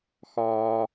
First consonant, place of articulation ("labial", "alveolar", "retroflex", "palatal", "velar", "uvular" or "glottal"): velar